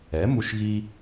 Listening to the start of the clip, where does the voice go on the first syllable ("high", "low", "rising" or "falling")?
rising